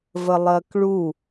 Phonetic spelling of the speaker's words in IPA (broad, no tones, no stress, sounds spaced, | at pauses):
v ə lˠ ɜ k ɭ u